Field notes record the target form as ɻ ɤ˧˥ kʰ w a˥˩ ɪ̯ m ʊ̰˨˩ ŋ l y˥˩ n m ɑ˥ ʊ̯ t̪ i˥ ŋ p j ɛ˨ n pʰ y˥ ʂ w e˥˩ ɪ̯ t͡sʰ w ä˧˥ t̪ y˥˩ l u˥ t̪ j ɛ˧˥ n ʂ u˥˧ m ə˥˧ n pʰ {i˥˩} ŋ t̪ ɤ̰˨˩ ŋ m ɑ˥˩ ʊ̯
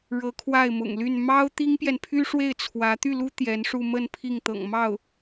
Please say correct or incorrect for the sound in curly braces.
correct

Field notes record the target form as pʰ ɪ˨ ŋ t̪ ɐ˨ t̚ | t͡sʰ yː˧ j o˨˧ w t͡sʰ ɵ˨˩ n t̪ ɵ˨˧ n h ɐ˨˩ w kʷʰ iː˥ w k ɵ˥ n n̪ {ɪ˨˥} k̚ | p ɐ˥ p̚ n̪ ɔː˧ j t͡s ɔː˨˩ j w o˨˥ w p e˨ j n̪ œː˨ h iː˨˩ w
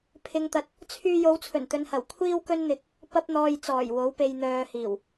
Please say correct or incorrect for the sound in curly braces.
incorrect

